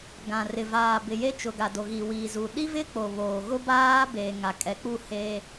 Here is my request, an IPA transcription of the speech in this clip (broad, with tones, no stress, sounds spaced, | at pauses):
ɡ ã˨ r ɪ˨ v aː˨ b ɪ˨ j e˦ t͡ʃ ʊ˨ ɡ a˨ d o˨ ɣ i˨ w i˨ z u˨ ɗ i˦ v ɪ˦ k͡p o˨ β oː˨ ɣ ʊ˦ b aː˦ b eː˨ ŋ a˨ kʼ ɛ˨˦ k͡p u˦˨ h e˦